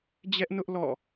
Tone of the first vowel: high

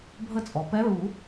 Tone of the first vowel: falling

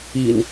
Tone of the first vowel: low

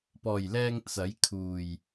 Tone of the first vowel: low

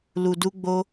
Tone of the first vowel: low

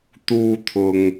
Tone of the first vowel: high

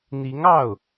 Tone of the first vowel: rising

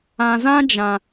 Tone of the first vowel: low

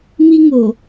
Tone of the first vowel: high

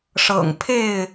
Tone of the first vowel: low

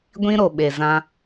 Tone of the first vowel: high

